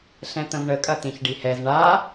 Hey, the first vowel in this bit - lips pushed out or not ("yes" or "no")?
no